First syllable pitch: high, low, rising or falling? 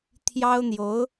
high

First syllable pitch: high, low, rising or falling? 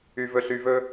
low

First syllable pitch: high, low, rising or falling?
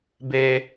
high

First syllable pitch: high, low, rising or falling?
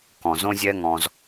low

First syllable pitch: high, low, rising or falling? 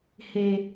high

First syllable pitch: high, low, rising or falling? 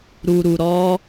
low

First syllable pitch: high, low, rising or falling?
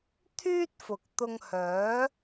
high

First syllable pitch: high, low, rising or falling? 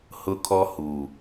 high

